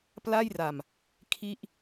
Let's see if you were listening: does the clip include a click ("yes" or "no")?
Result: no